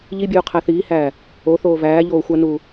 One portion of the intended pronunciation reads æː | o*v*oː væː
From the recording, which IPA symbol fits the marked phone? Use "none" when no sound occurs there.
θ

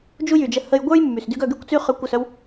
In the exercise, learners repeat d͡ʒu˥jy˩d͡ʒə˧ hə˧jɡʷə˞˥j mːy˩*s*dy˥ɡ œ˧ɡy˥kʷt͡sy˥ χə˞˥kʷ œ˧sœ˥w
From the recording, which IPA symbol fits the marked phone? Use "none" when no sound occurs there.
s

